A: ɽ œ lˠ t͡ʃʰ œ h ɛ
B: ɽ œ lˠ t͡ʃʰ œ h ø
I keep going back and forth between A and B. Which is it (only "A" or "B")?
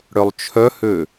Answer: B